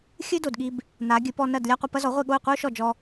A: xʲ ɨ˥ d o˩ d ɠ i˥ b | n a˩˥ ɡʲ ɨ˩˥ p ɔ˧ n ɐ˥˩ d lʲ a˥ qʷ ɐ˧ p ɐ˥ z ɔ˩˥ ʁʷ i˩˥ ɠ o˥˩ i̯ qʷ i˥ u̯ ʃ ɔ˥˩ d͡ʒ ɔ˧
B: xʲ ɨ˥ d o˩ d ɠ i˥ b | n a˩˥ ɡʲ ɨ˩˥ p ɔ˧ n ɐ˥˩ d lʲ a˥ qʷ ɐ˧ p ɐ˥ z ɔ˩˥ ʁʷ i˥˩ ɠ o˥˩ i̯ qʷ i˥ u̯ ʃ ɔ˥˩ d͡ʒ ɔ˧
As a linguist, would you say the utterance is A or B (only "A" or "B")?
B